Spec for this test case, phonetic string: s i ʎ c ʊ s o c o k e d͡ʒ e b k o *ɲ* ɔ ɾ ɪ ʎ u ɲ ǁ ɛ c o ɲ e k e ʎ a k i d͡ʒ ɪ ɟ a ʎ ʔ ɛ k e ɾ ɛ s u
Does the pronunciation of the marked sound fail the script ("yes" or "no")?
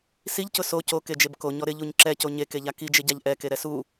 no